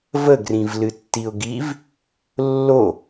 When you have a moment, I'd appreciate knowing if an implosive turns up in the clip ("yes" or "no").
no